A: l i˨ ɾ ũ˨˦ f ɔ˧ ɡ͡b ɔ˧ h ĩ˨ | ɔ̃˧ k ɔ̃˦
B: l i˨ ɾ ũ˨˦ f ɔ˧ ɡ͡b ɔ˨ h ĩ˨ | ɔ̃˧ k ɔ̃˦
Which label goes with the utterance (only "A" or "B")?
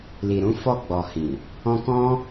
B